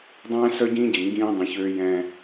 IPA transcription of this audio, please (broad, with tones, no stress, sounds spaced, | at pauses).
dˤ ɛ̃ː˦ s œ˦ ɟ ĩː˦ ɟ e˨ ŋ ɡ ĩː˦ dˤ ĩ˨ ç øː˦ j ɛ̃˦